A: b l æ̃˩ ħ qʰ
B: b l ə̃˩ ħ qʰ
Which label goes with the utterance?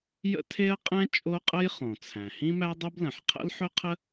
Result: B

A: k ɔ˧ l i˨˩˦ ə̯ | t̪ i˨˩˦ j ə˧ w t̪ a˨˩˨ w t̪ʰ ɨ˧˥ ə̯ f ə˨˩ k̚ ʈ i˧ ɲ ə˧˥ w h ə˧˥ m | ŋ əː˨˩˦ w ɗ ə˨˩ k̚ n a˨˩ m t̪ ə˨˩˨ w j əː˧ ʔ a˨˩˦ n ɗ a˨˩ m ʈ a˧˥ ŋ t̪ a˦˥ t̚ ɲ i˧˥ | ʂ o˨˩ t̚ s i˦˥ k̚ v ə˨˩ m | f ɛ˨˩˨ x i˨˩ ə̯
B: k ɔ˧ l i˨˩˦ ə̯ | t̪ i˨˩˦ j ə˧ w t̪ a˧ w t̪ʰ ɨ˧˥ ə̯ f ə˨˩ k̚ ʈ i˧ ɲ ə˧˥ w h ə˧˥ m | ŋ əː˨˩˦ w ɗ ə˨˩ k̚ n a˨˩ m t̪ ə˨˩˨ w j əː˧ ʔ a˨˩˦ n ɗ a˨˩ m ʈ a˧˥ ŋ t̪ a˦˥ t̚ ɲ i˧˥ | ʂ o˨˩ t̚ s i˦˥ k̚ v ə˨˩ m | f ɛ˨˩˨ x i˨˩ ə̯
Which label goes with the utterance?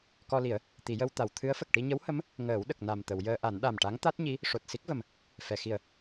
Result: A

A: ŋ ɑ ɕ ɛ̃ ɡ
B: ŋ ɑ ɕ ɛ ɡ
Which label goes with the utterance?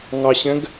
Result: A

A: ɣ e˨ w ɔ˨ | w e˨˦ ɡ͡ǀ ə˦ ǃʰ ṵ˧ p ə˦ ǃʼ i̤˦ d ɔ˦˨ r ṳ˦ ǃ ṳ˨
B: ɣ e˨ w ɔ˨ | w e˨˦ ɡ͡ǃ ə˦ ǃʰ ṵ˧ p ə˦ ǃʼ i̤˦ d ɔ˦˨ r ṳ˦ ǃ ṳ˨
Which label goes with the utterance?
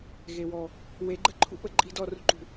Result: B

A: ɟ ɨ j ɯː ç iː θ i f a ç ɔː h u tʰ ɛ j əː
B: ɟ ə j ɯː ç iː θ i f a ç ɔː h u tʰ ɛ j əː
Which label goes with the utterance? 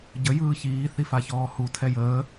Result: B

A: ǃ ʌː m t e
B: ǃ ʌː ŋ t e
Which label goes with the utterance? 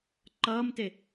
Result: A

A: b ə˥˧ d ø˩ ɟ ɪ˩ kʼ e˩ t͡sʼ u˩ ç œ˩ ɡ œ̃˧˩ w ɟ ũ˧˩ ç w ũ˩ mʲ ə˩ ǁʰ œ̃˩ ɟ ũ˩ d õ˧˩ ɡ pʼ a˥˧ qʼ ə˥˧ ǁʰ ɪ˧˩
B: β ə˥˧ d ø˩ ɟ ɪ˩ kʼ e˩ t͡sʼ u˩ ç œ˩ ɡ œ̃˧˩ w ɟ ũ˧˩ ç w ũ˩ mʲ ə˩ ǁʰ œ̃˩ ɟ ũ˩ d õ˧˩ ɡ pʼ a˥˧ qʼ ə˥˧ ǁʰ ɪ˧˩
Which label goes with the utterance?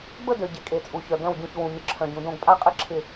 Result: A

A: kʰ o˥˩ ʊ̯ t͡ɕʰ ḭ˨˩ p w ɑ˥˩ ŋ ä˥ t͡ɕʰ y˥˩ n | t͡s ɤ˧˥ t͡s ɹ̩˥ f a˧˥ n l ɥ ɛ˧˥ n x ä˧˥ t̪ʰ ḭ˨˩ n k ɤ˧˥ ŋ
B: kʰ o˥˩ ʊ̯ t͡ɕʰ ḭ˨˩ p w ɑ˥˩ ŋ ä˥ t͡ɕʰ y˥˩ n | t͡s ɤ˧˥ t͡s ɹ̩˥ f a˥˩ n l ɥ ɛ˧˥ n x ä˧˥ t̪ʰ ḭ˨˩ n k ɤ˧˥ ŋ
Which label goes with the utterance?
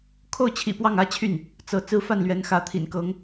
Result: B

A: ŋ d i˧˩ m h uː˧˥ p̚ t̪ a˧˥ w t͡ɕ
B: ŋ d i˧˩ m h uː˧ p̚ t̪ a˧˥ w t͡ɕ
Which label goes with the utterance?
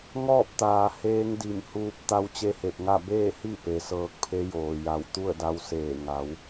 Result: B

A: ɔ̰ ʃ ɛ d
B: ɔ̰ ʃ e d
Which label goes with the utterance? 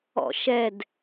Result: A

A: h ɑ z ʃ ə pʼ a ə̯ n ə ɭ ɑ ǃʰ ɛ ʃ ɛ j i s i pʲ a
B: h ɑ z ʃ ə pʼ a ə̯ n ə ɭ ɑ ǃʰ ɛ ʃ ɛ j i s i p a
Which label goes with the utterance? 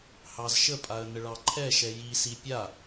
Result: A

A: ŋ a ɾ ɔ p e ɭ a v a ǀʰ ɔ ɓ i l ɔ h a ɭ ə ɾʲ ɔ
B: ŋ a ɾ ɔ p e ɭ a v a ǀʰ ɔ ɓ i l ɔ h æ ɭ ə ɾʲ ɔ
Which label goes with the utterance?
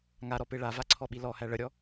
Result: B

